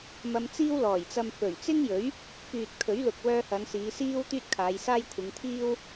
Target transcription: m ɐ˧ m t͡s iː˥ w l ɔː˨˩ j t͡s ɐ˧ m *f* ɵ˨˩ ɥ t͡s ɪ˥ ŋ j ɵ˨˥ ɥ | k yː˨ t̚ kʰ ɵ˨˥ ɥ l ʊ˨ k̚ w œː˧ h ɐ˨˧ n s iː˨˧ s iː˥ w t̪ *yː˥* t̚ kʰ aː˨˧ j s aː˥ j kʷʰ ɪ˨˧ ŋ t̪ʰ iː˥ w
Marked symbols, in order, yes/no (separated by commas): yes, yes